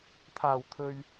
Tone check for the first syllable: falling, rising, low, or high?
low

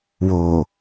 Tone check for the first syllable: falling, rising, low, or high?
low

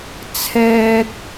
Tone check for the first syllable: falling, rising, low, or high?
high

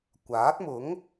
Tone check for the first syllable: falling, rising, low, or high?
rising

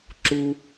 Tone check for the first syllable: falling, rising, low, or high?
low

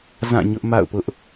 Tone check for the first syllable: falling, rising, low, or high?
falling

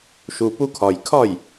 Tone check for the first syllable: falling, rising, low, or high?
low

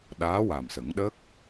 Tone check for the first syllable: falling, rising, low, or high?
rising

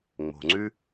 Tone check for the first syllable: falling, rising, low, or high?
low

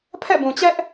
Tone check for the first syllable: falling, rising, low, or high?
falling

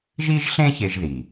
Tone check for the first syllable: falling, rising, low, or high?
high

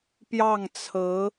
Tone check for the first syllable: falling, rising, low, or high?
falling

